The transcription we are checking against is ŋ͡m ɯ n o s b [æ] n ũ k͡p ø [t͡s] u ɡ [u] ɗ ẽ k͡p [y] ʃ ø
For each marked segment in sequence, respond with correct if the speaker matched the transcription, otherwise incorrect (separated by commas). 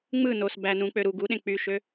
correct, incorrect, correct, correct